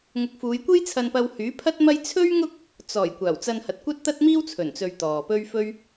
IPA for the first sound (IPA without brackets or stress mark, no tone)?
ŋ